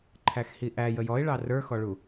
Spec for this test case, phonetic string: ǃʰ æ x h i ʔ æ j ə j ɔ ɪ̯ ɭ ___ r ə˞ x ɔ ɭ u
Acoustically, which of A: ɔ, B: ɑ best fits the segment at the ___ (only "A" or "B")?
B